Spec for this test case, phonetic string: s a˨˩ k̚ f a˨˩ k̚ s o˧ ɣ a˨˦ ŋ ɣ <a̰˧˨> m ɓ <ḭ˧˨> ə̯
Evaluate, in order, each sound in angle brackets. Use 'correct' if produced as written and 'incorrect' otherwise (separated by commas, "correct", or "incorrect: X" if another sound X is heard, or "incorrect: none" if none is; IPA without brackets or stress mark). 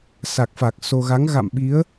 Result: correct, incorrect: i˨˦